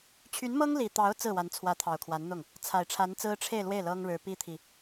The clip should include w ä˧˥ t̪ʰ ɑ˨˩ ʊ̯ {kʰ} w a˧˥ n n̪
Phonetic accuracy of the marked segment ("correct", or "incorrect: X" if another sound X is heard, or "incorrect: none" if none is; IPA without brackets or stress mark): correct